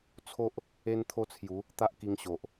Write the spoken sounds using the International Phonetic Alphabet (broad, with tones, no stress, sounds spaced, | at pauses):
t͡sʰ o˦ ʔ | e˦ n t̪ʰ o˦ t͡sʰ j u˨˦ | t̪ a˦ ʔ k i˧ ŋ ɕ o˨ ʔ